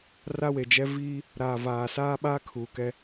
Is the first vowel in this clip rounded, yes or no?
no